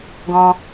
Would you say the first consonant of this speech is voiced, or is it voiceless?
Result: voiced